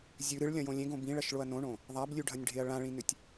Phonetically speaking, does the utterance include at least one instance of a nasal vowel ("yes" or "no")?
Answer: yes